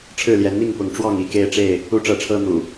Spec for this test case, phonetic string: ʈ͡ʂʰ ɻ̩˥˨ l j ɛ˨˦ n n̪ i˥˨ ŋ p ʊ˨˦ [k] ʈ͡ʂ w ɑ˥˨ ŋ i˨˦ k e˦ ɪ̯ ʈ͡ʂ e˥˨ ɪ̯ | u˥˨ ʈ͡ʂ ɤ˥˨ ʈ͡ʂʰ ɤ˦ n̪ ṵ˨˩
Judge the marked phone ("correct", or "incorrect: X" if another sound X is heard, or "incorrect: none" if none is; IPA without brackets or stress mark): incorrect: ŋ